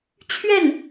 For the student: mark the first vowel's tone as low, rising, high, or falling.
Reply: falling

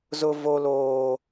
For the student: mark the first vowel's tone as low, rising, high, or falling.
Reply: high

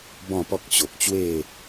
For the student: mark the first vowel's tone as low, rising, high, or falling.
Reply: falling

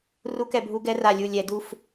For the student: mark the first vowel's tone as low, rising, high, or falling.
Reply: rising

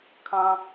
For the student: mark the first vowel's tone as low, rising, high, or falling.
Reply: low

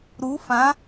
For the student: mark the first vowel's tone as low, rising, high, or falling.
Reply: rising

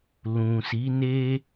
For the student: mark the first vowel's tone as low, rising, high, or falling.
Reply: low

